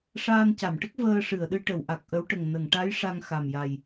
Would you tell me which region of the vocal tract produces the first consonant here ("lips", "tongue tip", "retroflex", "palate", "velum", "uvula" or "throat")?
retroflex